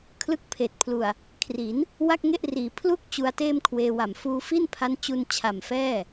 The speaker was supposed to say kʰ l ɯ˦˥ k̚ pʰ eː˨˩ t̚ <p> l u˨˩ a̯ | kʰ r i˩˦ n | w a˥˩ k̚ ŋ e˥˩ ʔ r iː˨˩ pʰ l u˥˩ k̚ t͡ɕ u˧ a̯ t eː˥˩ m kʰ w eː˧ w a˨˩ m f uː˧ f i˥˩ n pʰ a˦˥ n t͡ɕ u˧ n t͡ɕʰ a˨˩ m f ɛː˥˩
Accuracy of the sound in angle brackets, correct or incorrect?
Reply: incorrect